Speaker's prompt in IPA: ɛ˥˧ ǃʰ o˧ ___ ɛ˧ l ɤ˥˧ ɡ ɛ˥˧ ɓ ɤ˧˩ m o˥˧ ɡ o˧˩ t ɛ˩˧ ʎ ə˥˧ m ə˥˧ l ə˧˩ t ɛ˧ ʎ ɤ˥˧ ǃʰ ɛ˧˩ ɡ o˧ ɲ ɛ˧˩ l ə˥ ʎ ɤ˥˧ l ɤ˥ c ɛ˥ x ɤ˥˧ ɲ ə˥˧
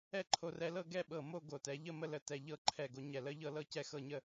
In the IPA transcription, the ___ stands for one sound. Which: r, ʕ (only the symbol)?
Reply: r